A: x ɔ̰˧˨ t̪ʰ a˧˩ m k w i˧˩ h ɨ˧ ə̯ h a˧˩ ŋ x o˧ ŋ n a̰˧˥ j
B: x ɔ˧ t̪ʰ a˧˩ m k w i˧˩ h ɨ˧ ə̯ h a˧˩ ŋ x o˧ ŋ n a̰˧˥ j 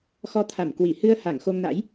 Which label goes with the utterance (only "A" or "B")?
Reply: B